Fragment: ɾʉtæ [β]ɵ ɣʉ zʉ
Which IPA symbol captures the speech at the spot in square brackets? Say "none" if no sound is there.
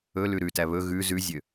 β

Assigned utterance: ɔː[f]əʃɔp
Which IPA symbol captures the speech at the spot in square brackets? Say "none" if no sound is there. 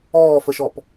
f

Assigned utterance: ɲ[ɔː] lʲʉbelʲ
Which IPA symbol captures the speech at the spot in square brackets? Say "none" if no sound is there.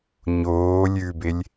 oː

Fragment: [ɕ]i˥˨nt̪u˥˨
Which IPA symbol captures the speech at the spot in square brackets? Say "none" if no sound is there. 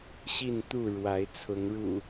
ɕ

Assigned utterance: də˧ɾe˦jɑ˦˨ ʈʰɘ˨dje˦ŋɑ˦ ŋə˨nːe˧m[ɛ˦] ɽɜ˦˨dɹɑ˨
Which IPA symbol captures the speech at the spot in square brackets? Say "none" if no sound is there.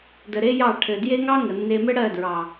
ɘ˦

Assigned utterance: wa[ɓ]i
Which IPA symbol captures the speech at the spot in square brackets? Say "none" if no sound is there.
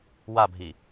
bʱ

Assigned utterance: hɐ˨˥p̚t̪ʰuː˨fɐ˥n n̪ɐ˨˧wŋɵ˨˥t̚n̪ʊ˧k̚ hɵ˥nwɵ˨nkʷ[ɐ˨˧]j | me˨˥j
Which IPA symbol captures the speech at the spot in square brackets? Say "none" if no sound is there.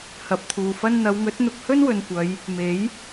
ɐ˨˧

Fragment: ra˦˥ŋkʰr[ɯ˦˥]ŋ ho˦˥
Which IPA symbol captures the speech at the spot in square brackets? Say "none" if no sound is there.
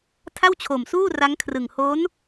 ɯ˨˩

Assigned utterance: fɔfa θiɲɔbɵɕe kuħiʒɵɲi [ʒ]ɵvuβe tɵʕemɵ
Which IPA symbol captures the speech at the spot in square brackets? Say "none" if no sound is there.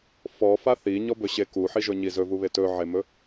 z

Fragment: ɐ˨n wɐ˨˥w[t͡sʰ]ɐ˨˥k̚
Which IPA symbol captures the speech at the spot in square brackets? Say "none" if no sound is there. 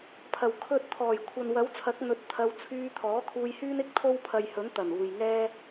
t͡sʰ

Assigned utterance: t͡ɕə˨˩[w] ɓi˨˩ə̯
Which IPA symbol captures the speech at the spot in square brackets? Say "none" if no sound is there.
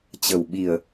w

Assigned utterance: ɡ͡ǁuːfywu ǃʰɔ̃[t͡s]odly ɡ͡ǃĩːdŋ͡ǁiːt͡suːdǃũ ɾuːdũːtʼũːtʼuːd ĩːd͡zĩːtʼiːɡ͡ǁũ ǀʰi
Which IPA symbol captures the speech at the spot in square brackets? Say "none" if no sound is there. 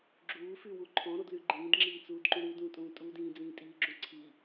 ɾ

